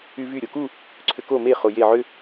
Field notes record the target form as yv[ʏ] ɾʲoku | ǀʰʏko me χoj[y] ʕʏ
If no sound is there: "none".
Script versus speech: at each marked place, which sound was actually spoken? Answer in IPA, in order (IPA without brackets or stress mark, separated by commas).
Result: y, e